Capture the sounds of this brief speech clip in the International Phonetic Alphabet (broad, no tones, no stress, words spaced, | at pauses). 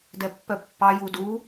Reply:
dɛpːœpːɑ judu